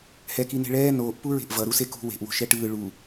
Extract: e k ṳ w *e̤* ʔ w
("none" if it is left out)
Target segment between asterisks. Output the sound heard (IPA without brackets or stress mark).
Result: e̤